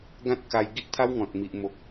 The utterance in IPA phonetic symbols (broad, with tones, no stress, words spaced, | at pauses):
ɡã˦t̚ka˧j ɡi˦ʔt̪ʰa˦wŋɔ̃˨t̚ mi˨ʔmo˨k̚